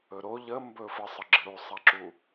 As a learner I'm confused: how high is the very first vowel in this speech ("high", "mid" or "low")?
mid